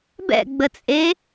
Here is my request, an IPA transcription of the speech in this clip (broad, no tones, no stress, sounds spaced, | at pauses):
b ɛ̰ ɡ͡b ə t͡sʼ e